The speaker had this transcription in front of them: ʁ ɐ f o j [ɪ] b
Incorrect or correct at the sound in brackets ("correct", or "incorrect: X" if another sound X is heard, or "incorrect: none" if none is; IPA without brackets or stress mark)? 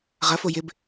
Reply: correct